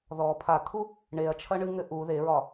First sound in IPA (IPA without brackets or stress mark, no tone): ð